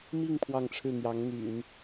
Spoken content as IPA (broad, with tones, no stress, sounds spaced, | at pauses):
m i˥˧ ŋ pʰ w ɑ˥˧ ŋ ʈ͡ʂʰ ɻ̩˥˩ n̪ j ɑ˧˥ ŋ n̪ y̰˨˩˦ n